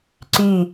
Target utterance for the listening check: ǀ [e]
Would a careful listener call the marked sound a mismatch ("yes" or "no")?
yes